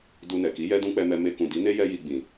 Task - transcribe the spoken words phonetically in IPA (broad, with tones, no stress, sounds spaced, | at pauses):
d u˧ n ɛ˨ k i˨˦ j ɛ˦ d ũ˦ k͡p ɛ˧ m ɛ˧ m e˧ k ũ˨ d i˨˦ n e˦ j ɛ˦ j i˧ ɡ͡b ĩ˨